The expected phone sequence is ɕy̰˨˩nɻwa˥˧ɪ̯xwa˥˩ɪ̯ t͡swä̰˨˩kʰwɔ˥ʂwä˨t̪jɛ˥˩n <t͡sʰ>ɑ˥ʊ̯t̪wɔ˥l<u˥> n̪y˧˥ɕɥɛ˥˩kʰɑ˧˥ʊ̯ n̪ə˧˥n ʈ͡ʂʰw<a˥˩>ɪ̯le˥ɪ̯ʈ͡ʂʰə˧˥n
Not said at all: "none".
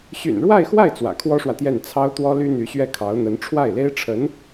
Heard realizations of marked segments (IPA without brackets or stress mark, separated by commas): t͡sʰ, y˥, a˥˩